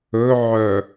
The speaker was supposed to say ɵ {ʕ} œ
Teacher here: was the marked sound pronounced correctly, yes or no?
yes